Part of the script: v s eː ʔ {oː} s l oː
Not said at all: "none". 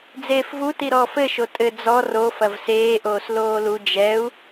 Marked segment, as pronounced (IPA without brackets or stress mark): oː